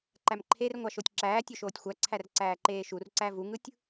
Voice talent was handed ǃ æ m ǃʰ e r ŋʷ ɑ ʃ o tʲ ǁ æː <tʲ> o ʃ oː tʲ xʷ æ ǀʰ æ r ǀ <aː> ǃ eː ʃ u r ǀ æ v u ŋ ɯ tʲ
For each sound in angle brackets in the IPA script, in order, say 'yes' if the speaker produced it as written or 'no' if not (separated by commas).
yes, no